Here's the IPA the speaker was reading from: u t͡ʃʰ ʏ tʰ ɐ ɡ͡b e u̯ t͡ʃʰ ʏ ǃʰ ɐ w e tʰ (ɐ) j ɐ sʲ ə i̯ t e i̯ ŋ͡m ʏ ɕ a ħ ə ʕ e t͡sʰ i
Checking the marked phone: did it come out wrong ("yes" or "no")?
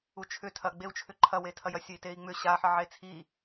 no